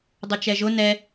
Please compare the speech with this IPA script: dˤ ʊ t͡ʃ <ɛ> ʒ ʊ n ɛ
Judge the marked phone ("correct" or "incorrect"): correct